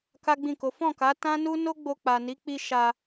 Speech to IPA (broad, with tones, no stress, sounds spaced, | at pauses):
k a˦ ɡ͡b ĩ˦˨ k o˨˦ f ɔ̃˦˨ k a˨˦ t ã˦ n u˦ n o˦ ɡ͡b o˧ k͡p a˨ n i˨˦ k͡p i˧ ʃ a˧